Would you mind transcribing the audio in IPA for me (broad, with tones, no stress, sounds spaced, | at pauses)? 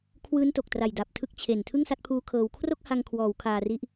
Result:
kʰ w ɯː˦˥ n t o˨˩ k̚ t r a˨˩ j d a˨˩ p̚ tʰ ɯ˦˥ k̚ t͡ɕʰ e˨˩ n tʰ ɯ˥˩ ŋ s a˦˥ t̚ pʰ uː˦˥ kʰ ɤː˧ w kʰ r o˥˩ k̚ h a˧ ŋ kʰ w ɔː˩˦ w kʰ aː˧ r i˦˥ ʔ